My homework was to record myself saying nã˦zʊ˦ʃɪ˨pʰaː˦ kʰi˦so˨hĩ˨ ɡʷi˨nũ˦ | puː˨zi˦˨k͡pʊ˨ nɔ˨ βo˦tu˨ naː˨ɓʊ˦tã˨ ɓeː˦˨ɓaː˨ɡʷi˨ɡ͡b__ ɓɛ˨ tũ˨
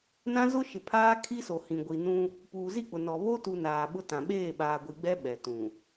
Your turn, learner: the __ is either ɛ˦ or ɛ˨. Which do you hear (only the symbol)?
ɛ˦